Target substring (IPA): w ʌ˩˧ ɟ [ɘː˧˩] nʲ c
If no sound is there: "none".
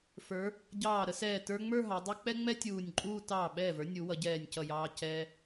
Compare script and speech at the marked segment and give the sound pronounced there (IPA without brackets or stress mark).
ɛː˧˩